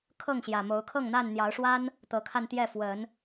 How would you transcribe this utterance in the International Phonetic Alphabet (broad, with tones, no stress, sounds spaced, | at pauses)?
kʰ ɤ˥˨ ŋ ɕ j ä˨˩ m o˨˦ ʊ̯ kʰ ɤ˥˨ ŋ n̪ a˥˨ n n̪ j ɑ˨˦ ʊ̯ ʂ w a˦ n | t̪ ɤ˨˦ kʰ a˧ n t̪ j ɛ˥˨ f w ə˨˦ n